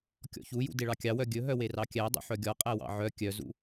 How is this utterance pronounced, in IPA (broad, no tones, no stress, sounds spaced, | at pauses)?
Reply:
kʲ ɔ̰ ç u j ṵ d e ɭ ɑ kʲ ɑ w œ ɡʲ ɵ ɦ œ w e r ɑ kʲ æ dˤ ṵ ħ œ ɡʲ ɔ qʼ æ w ɑ̰ ʕ œ kʲ œ z ṵ